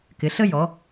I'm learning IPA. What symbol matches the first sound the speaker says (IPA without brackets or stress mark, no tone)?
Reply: k